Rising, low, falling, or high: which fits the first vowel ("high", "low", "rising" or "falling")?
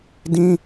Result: high